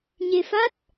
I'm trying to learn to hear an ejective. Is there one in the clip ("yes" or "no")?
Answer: no